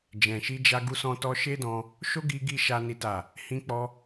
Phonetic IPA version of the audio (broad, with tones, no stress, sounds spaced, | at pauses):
d͡ʒ ɛ̃˨ ʃ i˧ d͡ʒ a˧ ɡ u˧ s ɔ̃˧ t ɔ˧ ʃ e˦ d ɔ̃˧ | ʃ o˦ ɡ i˧ ɡ i˧ ʃ a˦ n i˦ t a˦˨ | h ĩ˧ k͡p ɔ˧